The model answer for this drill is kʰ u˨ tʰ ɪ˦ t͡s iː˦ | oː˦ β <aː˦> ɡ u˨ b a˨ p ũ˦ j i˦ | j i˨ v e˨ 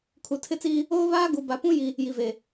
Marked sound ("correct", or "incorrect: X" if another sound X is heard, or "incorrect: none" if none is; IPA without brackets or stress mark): correct